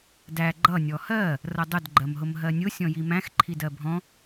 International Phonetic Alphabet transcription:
dæ ɡ͡ǃʌ nʲɔhɜ | rʌdˤʊd ɡ͡ǃɜmɦʊmɦɜnʲʊ sʲɔ̃jimæ̃x ǃʰidɜbʱɔ̃

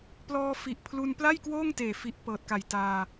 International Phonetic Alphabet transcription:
plɔː˧fi˨˩ʔpʰlu˧n pla˥˩jkwoː˥˩ŋteː˨˩ fi˨˩ʔ pɤː˨˩t̚ka˨˩j taː˧

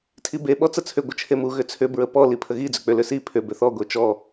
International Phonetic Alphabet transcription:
tʰibe ɓɔt͡sət͡sʰʏ ɡʷət͡ʃʰemu ɣʏt͡sʰʏ bɹəpɔ lipʰəɣi d͡zʏk͡pʏ lʏsi pʰʏ bʏθɔ ɡʷet͡ʃɔ

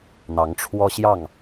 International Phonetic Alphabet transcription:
n̪ɑ˨˦ŋ ʈ͡ʂʰwɔ˦ɕjɑ˥˨ŋ

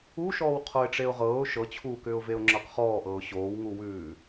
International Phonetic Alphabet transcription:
uʃɔːw qʰoɪ̯ʈ͡ʂeʊ̯ʁɤːʊ̯ ʃɤt͡ɕʰuːkʏːʊ̯ veʊ̯ŋ͡ǁɤqχɔːʔɤːʊ̯ ɕoːwŋuwʉː

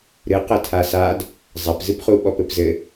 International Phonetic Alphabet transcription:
ɾɨ qɘtʰasad | zˤɐpzɨpχuɓɔp ɘpzɘ

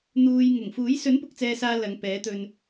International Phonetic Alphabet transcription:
n̪uː˨j ŋʊ˨˩ŋfuː˨˥j sɵ˨˥npʊ˨k̚t͡sɛː˨ saː˥ lɐ˨˧ŋpɛː˨˥t̪ɵ˧n

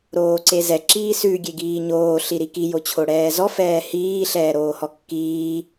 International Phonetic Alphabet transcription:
ɾoːǀezɛ ǁiːsʉ ɡʲeɡiːɲoː ɬiɾiki jot͡ɕʰoɽɛːzɔ fɛːhiː ɬɛːɾoːhɔkːiː

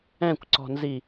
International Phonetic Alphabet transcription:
ɛ̃kʷǀɔ̤nzi

